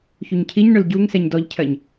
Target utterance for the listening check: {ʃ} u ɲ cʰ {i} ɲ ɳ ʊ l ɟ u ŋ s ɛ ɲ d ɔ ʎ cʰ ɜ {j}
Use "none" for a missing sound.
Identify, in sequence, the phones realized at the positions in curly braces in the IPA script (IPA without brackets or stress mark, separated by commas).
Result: ç, i, ɲ